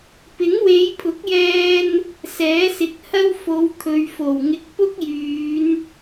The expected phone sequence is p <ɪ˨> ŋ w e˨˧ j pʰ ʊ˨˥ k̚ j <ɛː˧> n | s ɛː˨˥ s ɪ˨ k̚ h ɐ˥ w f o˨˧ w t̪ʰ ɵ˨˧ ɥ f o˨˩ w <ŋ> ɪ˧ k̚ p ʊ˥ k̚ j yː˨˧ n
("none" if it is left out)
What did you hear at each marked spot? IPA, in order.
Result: ɪ˨˥, ɛː˧, ŋ

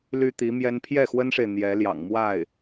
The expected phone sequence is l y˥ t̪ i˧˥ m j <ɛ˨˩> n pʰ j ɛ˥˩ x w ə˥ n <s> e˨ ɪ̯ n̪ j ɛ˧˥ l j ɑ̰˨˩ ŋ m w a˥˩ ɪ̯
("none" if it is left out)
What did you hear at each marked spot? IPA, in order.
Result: ɛ˥, ʂ

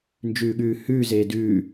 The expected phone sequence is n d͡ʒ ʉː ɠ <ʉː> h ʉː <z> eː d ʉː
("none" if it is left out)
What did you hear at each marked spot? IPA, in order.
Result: ʉː, z

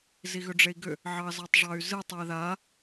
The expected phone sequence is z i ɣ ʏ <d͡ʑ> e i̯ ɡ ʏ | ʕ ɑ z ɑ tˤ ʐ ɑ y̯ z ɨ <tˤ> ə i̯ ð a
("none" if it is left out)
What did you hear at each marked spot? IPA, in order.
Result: ɖ͡ʐ, tˤ

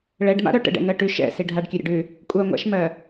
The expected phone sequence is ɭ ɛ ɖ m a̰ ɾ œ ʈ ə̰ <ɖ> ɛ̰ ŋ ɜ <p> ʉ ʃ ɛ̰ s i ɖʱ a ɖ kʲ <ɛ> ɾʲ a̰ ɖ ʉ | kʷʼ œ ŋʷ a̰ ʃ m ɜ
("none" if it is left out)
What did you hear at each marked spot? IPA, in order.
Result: ɖ, ʈ, ɜ

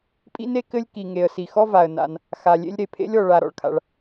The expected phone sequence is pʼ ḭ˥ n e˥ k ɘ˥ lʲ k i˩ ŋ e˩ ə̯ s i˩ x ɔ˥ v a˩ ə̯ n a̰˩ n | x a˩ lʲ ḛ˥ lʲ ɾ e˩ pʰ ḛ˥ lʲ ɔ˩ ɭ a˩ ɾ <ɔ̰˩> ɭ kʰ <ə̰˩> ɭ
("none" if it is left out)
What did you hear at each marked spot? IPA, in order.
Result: ɔ̰˩, a̰˩

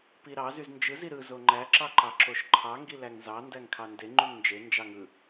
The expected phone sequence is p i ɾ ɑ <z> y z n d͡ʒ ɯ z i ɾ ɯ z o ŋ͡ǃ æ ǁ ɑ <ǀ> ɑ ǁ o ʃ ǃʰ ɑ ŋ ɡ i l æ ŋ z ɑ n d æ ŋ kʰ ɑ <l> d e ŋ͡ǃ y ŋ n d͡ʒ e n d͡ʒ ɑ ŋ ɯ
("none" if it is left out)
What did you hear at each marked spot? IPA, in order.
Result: z, ǃ, n

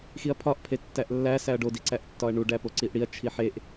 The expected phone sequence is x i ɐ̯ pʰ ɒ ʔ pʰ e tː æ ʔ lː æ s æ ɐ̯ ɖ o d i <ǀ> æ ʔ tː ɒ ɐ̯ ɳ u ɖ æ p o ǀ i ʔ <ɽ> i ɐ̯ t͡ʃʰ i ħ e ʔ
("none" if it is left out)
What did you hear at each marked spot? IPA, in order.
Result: ǀ, ɽ

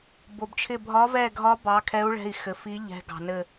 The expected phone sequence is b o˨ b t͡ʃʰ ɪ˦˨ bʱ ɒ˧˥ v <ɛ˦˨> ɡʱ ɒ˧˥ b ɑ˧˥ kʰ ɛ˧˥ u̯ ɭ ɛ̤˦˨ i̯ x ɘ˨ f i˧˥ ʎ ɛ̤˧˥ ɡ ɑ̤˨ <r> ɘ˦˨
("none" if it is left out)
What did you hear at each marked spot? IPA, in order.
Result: ɛ˦˨, n

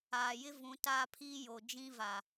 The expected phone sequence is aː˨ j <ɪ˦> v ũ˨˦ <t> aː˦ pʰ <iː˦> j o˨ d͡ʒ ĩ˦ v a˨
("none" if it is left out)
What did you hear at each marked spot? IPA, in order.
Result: ɪ˦, t, iː˦

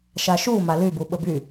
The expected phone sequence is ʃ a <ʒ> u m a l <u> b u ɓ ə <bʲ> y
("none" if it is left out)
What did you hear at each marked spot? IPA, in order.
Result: ʃ, y, b

